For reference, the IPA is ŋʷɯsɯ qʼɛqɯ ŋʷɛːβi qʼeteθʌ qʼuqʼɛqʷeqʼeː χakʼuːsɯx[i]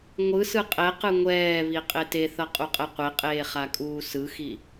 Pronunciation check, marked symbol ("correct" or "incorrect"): correct